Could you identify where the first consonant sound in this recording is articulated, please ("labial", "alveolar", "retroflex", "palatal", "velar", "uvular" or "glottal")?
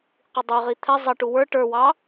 uvular